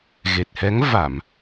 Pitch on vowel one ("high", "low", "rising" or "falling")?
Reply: low